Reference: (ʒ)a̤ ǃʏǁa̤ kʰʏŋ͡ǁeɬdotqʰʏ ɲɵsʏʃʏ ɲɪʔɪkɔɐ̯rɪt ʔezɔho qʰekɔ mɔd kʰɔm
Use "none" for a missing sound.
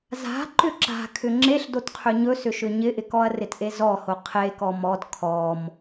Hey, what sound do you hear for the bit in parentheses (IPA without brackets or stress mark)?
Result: z